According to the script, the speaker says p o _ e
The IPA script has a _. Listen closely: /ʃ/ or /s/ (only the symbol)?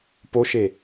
ʃ